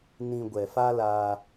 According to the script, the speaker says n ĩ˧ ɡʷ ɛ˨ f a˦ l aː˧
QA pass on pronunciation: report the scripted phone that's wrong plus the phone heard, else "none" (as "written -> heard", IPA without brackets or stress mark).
none